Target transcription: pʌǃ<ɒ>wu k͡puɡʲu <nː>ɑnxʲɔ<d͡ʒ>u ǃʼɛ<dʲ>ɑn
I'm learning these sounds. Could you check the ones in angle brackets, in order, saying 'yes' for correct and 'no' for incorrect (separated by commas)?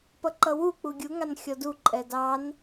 no, no, no, no